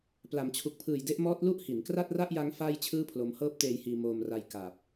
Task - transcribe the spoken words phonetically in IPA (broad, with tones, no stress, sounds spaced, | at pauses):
p l a˩˦ m t͡ɕʰ u˨˩ k̚ pʰ ɯː˨˩ j d e˦˥ ʔ m ɔː˦˥ t̚ l u˥˩ ʔ h i˩˦ n k r a˥˩ t̚ r a˥˩ ʔ j a˦˥ ŋ f aː˥˩ j t͡ɕʰ ɯː˥˩ pʰ l o˧ m h ɤː˦˥ p̚ t eː˧ j h iː˧ m oː˧ m r a˧ j k a˨˩ p̚